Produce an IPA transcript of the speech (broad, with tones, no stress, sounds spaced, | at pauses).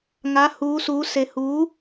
ŋ a˧˥ h uː˧˥ s uː˧˥ s e˧ h uː˧˥